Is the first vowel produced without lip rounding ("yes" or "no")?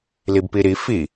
yes